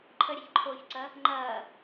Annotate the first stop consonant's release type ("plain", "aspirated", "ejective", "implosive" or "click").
click